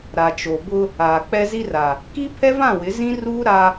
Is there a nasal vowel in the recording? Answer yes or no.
yes